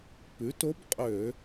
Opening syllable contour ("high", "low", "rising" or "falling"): rising